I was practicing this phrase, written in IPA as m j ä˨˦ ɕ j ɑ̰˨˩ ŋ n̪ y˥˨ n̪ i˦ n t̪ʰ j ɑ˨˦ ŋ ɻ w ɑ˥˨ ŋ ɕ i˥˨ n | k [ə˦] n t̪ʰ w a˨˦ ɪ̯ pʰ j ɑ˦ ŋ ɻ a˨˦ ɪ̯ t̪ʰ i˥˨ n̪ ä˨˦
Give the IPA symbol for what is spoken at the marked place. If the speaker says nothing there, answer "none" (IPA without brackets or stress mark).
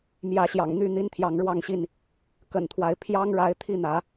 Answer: ə̰˨˩